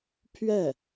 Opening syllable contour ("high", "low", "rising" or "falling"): falling